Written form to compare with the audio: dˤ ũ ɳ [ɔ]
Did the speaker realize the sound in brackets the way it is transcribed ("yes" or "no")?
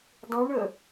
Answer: no